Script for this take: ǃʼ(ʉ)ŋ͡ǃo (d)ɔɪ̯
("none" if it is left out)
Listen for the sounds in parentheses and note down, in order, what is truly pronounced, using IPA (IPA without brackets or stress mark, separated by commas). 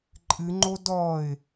ɨ, d